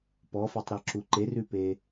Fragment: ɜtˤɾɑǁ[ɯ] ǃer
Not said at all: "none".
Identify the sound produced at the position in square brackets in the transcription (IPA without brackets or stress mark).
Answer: u